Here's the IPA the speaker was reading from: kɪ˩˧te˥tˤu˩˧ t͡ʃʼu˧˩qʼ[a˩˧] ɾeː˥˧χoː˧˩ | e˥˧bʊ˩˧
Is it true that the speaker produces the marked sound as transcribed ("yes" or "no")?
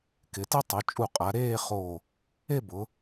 yes